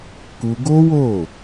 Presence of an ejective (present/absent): absent